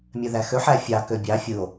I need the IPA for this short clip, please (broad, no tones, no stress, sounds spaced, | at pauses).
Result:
mʲ ø ð æ x ø ħ æ fʲ ɑ k ø bʲ ɑ fʲ ɯ o̯